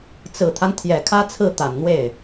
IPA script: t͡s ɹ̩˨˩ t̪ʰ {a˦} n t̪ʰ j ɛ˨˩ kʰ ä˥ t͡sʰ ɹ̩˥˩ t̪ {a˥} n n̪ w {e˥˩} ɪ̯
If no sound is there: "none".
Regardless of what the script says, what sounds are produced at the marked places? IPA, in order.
a˦, a˨˩, e˥˩

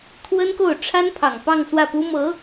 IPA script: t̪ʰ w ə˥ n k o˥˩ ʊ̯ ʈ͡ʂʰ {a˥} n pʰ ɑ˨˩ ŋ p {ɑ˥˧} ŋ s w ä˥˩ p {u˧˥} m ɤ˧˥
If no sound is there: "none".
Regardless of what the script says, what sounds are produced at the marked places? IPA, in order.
a˥, ɑ˥˧, u˥

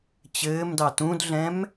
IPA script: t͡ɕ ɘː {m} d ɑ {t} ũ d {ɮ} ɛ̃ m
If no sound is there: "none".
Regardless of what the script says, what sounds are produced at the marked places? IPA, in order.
m, t, ɮ

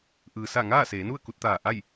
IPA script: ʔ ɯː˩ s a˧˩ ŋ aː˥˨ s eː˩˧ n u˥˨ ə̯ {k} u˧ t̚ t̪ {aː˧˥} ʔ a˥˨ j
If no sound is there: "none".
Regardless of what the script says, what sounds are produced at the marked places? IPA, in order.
k, aː˧˩

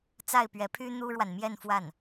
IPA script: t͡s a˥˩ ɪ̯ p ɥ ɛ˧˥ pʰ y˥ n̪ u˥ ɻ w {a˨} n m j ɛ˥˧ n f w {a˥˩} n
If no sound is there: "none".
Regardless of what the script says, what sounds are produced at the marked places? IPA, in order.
a˨, a˥˩

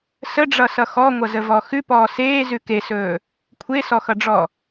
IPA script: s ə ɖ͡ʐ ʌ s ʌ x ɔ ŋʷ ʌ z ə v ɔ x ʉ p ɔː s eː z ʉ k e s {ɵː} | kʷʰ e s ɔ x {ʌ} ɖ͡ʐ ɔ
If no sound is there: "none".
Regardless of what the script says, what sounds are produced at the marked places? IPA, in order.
ɵː, ʌ

